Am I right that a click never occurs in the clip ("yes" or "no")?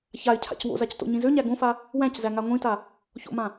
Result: yes